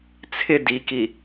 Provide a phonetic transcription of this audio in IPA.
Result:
t͡sʰ ɪ d i k i

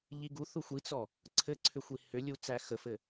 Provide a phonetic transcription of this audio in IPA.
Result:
ʎ i ɡ u θ u xʷ i t͡s ɔ | ǀʰ ɘ ǀʰ ʏ xʷ i h ʏ lʲ u t͡s æ x ə f ɘ

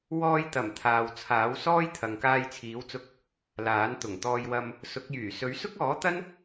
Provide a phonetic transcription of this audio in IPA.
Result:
w ɔː˧ j t̪ ɐ˨˩ m t̪ʰ aː˨ w t͡sʰ aː˨˥ w s ɔː˥ j t̪ʰ ɐ˨ ŋ k aː˧ j t͡sʰ iː˨˥ w t͡s ʊ˧ k̚ | l aː˨˥ n t̪ ʊ˨˩ ŋ t̪ ɔː˧ j w ɐ˧ m | s ʊ˨˥ k̚ j yː˨˩ s ɵ˨˥ ɥ s ʊ˥ k̚ ɔː˨˥ t̪ ɐ˥ n

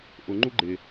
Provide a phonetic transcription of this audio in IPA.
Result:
ʔ ʊ ŋ͡ǃ u ɡ͡ǃ ɪ

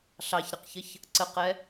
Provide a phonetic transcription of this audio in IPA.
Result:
ɬ ɑ ç ɾ ə q ç ə ç | ǀ ə q ɛ

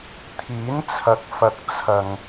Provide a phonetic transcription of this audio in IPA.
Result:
t̪ʰ iː˨˥ n t͡sʰ ɐ˨ k̚ f ɐ˨˥ k̚ t͡sʰ ɐ˨ ŋ

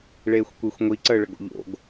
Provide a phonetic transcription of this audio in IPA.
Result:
ɭ eː xʷ kʷ i xʷ ŋʷ i ǀ əː ɭ ə ɡ o̰ ʎ o̰ ɡ

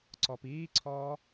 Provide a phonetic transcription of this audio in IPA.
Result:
ǀ ɔ p iː ǀʰ ɔː

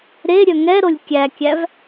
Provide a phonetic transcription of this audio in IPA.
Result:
ɾ e ɾʲ œ ŋ ɛ ɾ o lʲ kʲ æ kʲ æ v

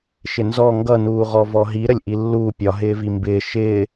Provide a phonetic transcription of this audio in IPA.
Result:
ʃ ɪ n z ɔ ŋ ɡ ʌ n uː ʁ ɔ v ɔ ɦ i ɾ ə lʲ ʔ i lː uː pʲ ɒ ɦ ɪː v i m b ɪː ʃ ɪː

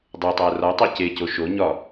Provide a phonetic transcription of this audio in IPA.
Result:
dˤ e tˤ æ r ɒ tˤ æ c e c o ʃ o ɲ ɒ

